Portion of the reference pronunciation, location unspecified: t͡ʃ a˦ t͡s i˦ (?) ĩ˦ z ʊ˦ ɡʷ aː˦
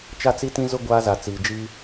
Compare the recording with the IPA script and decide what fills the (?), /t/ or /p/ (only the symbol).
t